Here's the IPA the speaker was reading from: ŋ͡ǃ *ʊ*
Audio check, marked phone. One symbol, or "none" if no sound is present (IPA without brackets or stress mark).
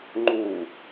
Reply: u